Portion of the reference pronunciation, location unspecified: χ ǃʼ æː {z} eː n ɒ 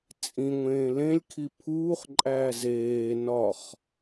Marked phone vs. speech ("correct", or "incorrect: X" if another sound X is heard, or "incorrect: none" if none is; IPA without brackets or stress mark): correct